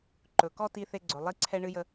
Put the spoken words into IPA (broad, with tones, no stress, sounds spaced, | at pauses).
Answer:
ǃ ɵ˨ k ɔ˦ t i˧ θ e˧ ɡ͡ǀ ɵ˨ lˠ i˦ ǀʰ ɛ˦ ɳ ɨ˦ j ə˦